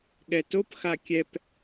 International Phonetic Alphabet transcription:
ɠ ɛ t o p x a kʲ ɛ p

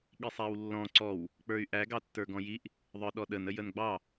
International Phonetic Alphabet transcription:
ɠ i sˤ æ w lː ɔ̃ ǀ ɔ w | k͡p ə˞ y̯ ʔ æ ɡ ɑ tː ə˞ ɡ ɔ̃ j i ʔ | ðˤ ə˞ ɗ ɔ ɗ ə n ə j ə n ɡ͡b ɑ

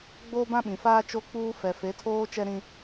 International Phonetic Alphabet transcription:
ɡ͡b oː˦ b ã˦ ɓ ĩ˨ f aː˦ t͡ʃ o˦ k͡p uː˦ f ɛ˨ f e˨˦ tʰ oː˦ t͡ʃ ɛ˦ ɾ ĩ˦

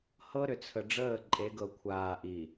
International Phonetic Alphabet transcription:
h ɤ˦ ɾ ʏ˨ t͡sʰ ə˨ ɖ͡ʐ əː˦˨ ǃʼ e˨˦ ɡ ɤ˨ kʷʰ aː˨ ʔ i˨

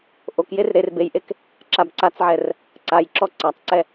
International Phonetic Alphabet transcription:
ʔ o k j e r ɾ e r b e j ʔ e k | ǁ a b ǀ a t͡s ʕ ɛ r | ǀ a j ǁ ɔ ǀ a tˤ ǀ ɛ

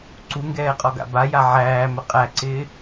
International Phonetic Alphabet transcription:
ǀ u ŋ ɡ ɛː qʼ ɔ ɡ a̰ b a j a ʕ æː m ə qʼ æ ǀ ɪː

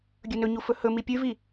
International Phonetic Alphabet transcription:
ɡʲ ɵ n ɵ ɲ u f ɵ h ɵ m i pʲ ʉ v i

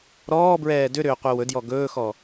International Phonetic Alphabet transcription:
ɾ ɔː b ɹ ɛː d ʏ ɾ ʏː qʷ e w ɵ d j ɔ ɡ ɵː x ɔ

